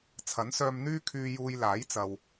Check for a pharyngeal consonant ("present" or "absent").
absent